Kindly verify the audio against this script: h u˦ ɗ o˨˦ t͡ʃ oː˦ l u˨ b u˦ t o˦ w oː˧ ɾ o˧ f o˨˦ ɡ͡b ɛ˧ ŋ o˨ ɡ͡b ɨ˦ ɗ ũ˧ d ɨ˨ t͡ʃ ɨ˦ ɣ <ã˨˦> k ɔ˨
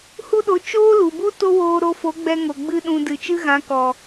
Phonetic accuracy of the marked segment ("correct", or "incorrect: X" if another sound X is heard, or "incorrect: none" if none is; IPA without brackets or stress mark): correct